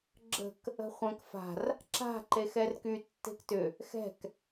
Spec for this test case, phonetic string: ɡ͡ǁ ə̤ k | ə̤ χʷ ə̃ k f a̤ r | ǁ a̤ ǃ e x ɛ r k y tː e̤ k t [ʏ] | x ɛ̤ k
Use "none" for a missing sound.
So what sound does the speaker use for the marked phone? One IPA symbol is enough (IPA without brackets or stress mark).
ʏ